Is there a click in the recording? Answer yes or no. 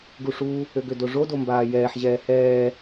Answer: no